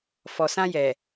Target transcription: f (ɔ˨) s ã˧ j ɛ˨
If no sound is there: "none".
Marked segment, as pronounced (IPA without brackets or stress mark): ɔ˨